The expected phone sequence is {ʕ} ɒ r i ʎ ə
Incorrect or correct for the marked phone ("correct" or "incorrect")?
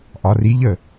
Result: incorrect